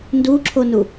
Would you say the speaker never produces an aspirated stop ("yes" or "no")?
no